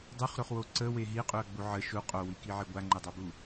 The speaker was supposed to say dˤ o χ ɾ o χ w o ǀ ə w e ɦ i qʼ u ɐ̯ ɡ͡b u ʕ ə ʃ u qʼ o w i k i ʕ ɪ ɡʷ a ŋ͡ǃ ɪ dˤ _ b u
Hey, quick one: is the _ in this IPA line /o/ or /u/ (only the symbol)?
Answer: o